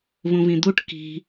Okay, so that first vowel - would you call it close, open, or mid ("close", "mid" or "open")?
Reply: close